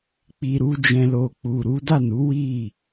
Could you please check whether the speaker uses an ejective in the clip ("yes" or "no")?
no